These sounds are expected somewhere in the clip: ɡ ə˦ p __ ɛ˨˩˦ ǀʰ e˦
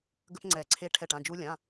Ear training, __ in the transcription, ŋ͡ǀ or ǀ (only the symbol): ŋ͡ǀ